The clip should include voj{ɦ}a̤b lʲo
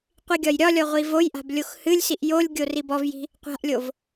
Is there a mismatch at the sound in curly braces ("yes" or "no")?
yes